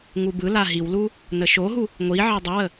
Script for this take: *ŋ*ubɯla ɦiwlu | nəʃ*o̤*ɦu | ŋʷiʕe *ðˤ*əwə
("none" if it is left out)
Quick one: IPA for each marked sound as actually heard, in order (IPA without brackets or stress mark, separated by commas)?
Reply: ŋ, o, dˤ